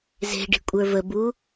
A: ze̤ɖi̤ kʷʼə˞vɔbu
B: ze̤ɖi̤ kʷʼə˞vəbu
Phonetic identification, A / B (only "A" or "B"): B